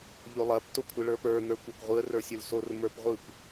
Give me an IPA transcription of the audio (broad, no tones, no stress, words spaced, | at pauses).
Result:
ʎolˠɐp tokʷʰɯɭə˞pə˞ n̪ə˞kʷakʷʁʷɯə̯ rə˞sʲə˞lsor mə˞pʁʷɯkʷ